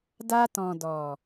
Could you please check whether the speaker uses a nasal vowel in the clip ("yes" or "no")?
yes